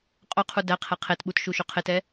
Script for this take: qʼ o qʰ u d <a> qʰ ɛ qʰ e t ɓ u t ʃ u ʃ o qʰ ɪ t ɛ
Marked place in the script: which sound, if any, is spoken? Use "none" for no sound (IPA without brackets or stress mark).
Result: æ